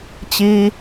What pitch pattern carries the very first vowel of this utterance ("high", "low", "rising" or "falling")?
high